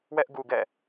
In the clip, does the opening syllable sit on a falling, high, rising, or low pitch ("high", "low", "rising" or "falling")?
high